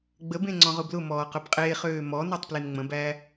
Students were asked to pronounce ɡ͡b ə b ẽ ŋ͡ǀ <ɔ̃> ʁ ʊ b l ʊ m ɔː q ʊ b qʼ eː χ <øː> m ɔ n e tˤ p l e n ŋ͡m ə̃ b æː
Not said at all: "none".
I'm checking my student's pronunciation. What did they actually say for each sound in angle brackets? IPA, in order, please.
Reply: ɔ̃, øː

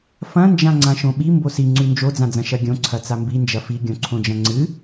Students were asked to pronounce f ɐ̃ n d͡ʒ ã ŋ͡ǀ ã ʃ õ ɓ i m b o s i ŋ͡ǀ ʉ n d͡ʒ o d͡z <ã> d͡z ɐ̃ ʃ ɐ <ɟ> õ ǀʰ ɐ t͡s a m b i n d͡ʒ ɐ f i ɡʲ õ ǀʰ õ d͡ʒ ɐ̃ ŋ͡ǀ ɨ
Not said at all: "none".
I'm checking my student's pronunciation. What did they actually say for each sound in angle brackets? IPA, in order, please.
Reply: ã, ɡʲ

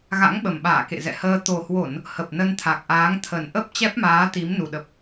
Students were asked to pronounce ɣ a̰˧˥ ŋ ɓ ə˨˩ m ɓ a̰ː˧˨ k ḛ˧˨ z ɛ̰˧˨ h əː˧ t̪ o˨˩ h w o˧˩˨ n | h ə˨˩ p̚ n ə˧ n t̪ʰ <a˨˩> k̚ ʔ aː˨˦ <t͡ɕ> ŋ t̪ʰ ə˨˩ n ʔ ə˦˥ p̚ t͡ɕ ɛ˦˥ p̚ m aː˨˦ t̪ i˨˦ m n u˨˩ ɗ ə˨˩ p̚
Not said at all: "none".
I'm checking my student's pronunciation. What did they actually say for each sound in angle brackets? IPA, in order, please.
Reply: a˨˩, none

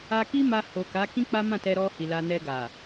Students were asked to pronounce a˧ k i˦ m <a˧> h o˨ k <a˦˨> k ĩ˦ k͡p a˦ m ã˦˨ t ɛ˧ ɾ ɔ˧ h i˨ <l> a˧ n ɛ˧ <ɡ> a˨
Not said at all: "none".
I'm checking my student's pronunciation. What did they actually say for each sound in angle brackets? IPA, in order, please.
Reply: a˧, a˨˦, l, ɡ

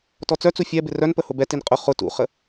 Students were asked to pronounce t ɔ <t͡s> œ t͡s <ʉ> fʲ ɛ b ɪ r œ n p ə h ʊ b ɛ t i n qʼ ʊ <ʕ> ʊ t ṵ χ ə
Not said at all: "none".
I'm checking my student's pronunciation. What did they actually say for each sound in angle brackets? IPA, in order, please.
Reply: t͡s, u, χ

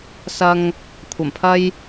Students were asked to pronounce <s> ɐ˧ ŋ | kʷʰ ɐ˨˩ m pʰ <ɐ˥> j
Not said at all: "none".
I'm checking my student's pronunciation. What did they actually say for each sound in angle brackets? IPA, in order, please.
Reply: s, ɐ˥

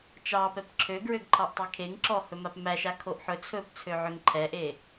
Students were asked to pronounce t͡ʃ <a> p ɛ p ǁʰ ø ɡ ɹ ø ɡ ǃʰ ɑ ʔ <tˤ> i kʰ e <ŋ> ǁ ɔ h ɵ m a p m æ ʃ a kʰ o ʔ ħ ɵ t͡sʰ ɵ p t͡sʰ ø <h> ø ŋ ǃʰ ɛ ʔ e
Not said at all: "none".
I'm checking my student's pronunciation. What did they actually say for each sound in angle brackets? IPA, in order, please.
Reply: ɑ, tˤ, ŋ, ʕ

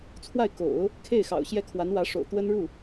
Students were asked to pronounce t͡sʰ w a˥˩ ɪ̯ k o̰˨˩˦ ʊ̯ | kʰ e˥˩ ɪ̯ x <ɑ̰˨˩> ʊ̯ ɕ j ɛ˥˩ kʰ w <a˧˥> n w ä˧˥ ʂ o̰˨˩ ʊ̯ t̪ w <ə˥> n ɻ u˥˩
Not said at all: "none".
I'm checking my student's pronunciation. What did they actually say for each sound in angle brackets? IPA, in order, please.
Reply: ɑ̰˨˩, a˧˥, ə˥

